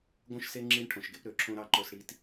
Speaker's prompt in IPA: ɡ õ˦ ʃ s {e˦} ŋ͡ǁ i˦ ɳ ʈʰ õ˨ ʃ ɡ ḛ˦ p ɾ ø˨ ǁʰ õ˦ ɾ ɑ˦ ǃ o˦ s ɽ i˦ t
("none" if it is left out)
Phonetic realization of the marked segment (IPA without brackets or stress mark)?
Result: e˦